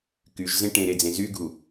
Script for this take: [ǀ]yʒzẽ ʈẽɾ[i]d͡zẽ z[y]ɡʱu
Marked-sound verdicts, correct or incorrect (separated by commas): incorrect, incorrect, correct